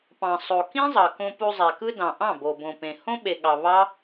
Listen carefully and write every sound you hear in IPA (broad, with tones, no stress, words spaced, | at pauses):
pɑ̃˨sˤo˨kĩ˦zˤɑ˨ kõ˧pu˧ zˤæ˨kɯ˧dɑ̃˨ ʔɑ̃˦˨bo˨bõ˨pẽ˨ hõ˦ɓe˨ɠɑ˨ βɑ˦